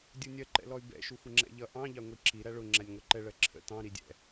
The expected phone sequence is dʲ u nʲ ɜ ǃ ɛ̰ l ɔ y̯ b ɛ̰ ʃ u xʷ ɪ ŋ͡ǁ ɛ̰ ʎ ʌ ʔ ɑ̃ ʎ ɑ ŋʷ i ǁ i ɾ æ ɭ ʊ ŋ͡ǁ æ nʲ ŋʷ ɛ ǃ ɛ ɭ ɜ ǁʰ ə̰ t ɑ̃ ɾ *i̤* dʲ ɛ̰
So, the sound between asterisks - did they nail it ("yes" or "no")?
no